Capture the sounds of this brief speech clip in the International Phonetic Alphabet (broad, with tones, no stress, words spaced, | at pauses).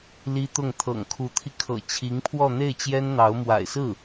li˥t̪ʊ˥˩ŋ t̪ʰɤ̰˨˩ŋkʰu˧˥t̪ʰi˧ kʰɤ̰˨˩ t͡ɕʰi˧˥ŋpʰwɔ˥˧ n̪e˥˩ɪ̯t͡ɕjɛ˥nn̪ɑ˧˥ʊ̯ mwa̰˨˩ɪ̯sɹ̩˥˩